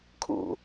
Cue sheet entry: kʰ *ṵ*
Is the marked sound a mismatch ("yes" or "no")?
no